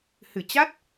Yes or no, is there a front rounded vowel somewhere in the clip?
no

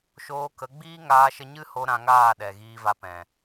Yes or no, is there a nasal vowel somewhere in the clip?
yes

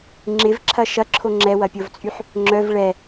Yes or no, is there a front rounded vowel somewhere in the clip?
yes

